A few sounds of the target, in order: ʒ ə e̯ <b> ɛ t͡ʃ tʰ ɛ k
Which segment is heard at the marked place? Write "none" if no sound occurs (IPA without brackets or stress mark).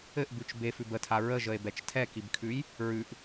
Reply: b